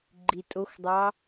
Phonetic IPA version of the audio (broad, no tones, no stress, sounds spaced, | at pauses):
ɡ͡ǃ i tʼ o x dˤ ɑ